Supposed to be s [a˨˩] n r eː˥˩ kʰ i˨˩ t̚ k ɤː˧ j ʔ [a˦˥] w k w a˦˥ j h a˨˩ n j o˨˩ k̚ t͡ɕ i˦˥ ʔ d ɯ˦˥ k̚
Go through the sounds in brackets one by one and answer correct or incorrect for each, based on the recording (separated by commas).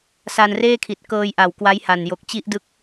incorrect, incorrect